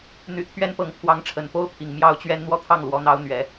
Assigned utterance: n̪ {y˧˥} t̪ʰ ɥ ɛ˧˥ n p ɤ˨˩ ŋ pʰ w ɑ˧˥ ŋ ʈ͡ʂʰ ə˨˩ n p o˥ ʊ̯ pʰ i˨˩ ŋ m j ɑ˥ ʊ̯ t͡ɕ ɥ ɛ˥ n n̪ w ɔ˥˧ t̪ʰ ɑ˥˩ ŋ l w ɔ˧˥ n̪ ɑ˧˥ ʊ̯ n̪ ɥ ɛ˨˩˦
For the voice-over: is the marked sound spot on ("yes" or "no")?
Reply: no